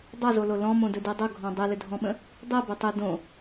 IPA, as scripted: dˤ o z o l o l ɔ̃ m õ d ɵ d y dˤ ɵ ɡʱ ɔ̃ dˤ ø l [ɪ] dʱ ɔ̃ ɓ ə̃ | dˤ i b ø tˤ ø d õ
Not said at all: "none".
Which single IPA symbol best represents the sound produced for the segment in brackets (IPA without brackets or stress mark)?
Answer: ʏ